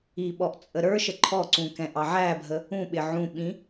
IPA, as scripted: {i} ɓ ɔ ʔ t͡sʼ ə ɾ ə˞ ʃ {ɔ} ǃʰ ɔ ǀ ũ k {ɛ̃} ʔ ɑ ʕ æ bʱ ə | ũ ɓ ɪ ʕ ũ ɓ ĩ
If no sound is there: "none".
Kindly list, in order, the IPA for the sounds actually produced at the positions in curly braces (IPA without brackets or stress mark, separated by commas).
i, ə, ɛ̃